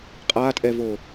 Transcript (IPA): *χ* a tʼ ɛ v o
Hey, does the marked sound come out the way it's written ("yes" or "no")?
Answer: no